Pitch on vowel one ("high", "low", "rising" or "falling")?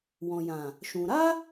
low